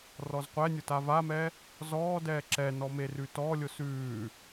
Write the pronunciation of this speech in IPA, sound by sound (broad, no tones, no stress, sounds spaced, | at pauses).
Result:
r ɔ z qʷ ɛ nʲ ʊ t a v a m ɛ | z ɔː d ɛː ǁ ɛ n ɔ m e r ʉ t ɔ lʲ ʊ s ʉː